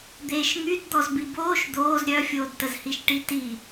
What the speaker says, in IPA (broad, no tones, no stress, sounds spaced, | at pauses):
d̪ eː ʃ ŋ y d d̪ ɔ z b i b oː ʃ d̪ oː z ɾʲ œ fʲ oː d t ə z h i ʃ ʈ i t i